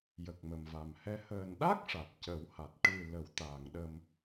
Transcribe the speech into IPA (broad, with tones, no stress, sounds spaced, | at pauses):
j ə˨˩ k̚ m ə˨˩ m v a˨˩ m h ɛ˧˥ h əː˨˩ n ɗ a˦˥ k̚ ʂ a˨˩ t̚ c ə˨˩˦ w h a˨˩ t̚ ʈ ɨ˨˩ l ə˨˩˨ w t̪ aː˨˩˨ ŋ ɗ ə˧ m